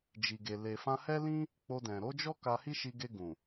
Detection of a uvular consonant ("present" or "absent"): absent